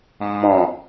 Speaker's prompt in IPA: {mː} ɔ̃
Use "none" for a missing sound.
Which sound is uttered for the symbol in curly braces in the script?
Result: mː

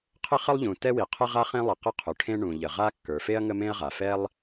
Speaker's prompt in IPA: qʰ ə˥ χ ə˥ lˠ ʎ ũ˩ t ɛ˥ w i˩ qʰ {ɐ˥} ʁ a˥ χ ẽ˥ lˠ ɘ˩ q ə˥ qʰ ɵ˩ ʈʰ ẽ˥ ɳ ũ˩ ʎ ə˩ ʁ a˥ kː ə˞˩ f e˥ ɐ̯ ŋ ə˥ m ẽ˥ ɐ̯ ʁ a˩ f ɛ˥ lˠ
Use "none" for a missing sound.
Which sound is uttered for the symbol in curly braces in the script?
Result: ə˥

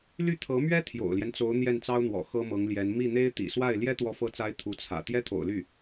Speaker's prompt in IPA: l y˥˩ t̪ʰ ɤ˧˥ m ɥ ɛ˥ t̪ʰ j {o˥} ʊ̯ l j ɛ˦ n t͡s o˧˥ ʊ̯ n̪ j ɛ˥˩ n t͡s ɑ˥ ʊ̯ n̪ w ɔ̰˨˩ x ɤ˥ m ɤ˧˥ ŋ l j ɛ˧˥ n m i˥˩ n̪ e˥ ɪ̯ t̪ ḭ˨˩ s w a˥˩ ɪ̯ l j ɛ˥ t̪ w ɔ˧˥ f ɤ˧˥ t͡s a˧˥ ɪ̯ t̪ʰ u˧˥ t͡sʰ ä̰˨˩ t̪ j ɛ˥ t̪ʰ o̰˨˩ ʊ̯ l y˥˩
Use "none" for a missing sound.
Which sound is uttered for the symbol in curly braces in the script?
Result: o̰˨˩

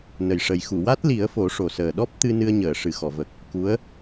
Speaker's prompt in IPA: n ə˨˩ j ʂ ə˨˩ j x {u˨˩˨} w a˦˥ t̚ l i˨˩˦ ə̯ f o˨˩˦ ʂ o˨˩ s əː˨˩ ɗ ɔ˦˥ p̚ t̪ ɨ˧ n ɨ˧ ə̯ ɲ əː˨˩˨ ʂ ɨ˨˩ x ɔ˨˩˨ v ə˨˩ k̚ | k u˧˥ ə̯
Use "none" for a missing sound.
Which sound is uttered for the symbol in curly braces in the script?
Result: u˨˩˨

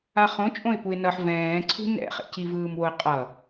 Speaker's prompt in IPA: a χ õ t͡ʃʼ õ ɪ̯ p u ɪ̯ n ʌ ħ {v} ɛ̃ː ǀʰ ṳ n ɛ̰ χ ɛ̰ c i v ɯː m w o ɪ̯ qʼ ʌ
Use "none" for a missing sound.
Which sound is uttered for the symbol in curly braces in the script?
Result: v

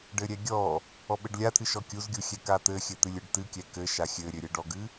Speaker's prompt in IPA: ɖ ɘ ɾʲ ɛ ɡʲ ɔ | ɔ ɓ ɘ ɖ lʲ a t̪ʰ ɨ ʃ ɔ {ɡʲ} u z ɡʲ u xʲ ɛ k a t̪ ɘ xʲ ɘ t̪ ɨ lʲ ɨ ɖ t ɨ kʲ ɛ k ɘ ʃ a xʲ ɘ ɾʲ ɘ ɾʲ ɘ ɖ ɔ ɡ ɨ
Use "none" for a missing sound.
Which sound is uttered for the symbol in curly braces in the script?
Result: kʲ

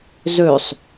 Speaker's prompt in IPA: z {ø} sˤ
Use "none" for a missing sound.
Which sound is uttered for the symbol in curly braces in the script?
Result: ø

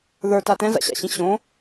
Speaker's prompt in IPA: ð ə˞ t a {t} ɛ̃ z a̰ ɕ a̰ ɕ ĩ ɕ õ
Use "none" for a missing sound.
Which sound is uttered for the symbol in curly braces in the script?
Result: t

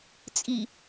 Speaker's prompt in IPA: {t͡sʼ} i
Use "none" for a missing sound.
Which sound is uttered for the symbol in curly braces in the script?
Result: t͡sʼ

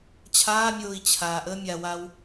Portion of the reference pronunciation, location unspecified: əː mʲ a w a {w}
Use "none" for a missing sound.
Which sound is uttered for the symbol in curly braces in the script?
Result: w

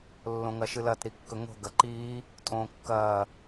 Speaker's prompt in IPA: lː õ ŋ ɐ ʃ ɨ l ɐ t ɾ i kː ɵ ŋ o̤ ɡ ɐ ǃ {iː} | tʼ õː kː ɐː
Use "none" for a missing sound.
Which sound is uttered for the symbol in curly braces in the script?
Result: iː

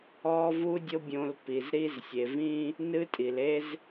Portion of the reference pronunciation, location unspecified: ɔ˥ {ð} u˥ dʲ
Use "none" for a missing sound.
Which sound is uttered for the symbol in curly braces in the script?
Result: v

